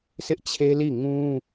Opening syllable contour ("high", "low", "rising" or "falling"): high